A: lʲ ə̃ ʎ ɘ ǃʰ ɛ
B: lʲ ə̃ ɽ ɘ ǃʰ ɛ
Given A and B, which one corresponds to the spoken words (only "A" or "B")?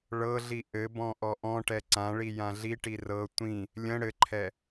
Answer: B